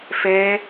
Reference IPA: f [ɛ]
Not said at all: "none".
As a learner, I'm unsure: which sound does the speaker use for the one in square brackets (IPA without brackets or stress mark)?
ɛ